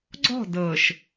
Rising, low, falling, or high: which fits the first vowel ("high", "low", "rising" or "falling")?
falling